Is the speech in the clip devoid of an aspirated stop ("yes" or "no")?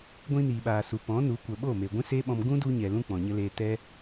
yes